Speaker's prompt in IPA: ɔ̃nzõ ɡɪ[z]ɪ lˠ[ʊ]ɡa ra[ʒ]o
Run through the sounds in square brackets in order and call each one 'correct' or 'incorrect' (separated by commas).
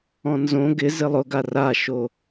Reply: correct, correct, incorrect